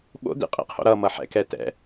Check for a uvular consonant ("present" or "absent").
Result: present